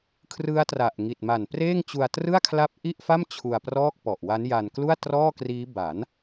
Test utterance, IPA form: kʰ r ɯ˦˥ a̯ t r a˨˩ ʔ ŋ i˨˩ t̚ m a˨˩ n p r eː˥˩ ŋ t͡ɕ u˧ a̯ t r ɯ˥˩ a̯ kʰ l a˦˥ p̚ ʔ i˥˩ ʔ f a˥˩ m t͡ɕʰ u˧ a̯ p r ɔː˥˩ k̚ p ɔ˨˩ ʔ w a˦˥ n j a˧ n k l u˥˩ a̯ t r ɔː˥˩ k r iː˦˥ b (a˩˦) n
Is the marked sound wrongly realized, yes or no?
no